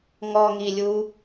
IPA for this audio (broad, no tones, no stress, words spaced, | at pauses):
ŋɔŋilʲu